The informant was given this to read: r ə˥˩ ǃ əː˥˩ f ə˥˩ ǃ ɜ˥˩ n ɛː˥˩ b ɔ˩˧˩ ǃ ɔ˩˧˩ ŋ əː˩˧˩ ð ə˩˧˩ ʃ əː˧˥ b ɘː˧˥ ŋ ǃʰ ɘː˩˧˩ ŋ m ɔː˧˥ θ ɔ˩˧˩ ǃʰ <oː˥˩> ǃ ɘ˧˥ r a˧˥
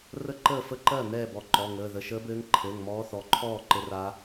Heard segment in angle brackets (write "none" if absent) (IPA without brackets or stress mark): ɔː˥˩